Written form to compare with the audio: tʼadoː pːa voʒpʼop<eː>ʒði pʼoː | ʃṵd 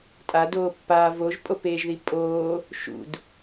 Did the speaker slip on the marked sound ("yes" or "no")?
no